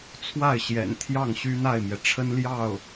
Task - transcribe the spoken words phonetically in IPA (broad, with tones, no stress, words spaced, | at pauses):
t͡sʰwa˥˩ɪ̯ɕjɛ̰˨˩nt̪ʰjɑ˥˩ŋ ɕy˥n̪a˥˩ɪ̯mjɛ˩ʈ͡ʂʰə˥n ljɑ˥˩ʊ̯